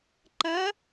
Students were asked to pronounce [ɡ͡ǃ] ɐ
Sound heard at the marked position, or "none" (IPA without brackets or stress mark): ǃ